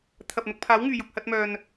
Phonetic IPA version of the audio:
t̪ʰɐ˨p̚n̪ʊ˧k̚pʰaː˨˥wŋyː˨ jʊ˨k̚hɐ˧t̚mœː˨n

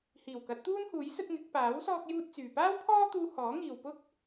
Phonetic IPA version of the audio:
hiː˨˩wkɐ˨˥t̚t̪uː˥nhuː˨˥j sɵ˥t̚ŋɪ˨˥k̚ paː˨˥w sɔː˥k̚juː˥t̚t͡syː˨ paː˥wpʰɔː˥t̪uː˧ hɔː˨˥ŋiː˨wpʊ˥k̚

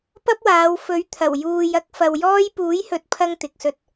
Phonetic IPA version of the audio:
pɐ˥p̚waː˨˧w fɵ˨˥ɥt̪ʰɐ˨˩w juː˨j ɐ˥k̚fɐ˨wjɔː˥j puː˨˥jhɵ˨t̚pʰɐ˧ŋ t̪ɪ˧k̚sɵ˥t̚

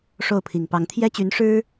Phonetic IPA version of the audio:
ʂo˥˩ʊ̯pʰi˨˩ŋpɑ˧˥ŋ t̪ʰjɛ˥t͡ɕy˧˥nʂɻ̩˥

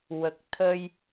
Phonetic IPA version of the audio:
wə˨˩k̚t̪ʰə˧j

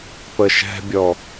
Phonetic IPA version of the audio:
pəʃɛ̤bʲɔ

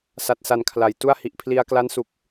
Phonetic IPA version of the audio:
sa˨˩t̚sa˨˩n kʰla˩˦jtu˥˩a̯ hi˨˩ʔpʰli˧a̯kla˦˥n su˨˩k̚

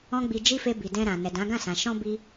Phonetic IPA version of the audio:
ɔ̃˦ɡ͡bi˧ d͡ʒi˦fe˧bi˨ dɛ̃˧ɾã˨ nɛ˨dã˨˦ɡã˦˨sã˨ ʃɔ̃˧ bi˦

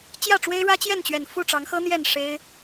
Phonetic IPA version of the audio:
t͡ɕjä˥˨ʈ͡ʂwe˦ɪ̯ɻä˦ t͡ɕjɛ˥˨nt͡ɕɥɛ˨˩n fu˥˨ʈ͡ʂɑ˨˦ŋxɤ˦ n̪jɛ˥˨n ʂe˦ɪ̯

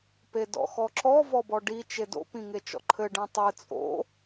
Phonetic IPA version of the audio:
pedɔ̰xɔǁɔ vɔbɔɖi t͡ʃedo̰ pĩŋet͡ʃɔ̰ǃʰɘ ɖẽtˤɨ t͡sʼo̰

